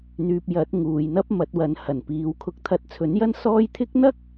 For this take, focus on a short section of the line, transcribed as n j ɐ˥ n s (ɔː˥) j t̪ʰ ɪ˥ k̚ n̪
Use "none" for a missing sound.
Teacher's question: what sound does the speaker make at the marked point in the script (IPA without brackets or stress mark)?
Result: ɔː˥